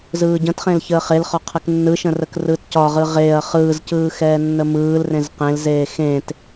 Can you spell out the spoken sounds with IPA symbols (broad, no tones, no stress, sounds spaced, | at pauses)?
z ɯː ɟ ə̃ t χ ẽ l ç əː χ e l χ ɒ qʰ ɛ k nː ɯ ʃ ə̃ r ə k r ɯː t c ɒ ʁ ɯ ʁ eː ɐ̯ χ ɯː z c ɯː x ɛː nː ə m ɯː l r ẽ z q ẽ l z eː x ẽ t